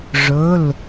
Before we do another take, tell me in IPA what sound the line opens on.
ʐ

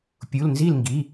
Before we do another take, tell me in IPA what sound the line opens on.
pʲ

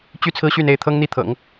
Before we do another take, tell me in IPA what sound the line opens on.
t͡ɕ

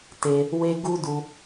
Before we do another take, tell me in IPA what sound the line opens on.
t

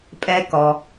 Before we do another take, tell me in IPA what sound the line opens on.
pʼ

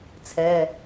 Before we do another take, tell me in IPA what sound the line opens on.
t͡sʰ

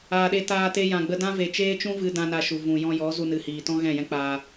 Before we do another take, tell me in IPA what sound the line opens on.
aː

